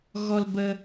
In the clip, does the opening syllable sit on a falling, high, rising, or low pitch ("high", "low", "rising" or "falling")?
high